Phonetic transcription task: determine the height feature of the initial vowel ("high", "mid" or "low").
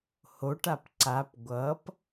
mid